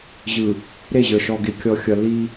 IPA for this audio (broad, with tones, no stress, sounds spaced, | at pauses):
ʑ ɯ˨ | ɾ e˦˨ ʑ ə˞˨ ʃ ɔ˨ ɡ e˨ kʲ ɔ˨ xʲ ʌ˨ lː i˦